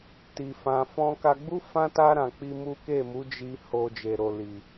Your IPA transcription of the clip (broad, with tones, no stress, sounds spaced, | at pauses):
t i˨ f ã˨ f ɔ̃˧ k a˧ ɡ͡b u˦ f ã˦ t a˦ ɾ ã˧ k͡p i˦ m u˦ k e˦˨ m u˨˦ d͡ʒ i˧ h o˧ d͡ʒ e˨ ɾ o˨ l i˨